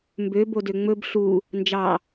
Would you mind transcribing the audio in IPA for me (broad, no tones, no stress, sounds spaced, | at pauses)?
m b ø b o d ø ŋ͡m ɵ b ɬ u | n d͡ʒ ɑ